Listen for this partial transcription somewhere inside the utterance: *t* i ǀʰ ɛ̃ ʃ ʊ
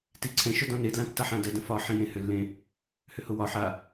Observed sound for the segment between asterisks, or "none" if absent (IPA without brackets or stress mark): t